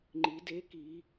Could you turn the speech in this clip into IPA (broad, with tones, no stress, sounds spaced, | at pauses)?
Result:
ŋ͡ǃ i˩˧ d e˧˥ k i˩˧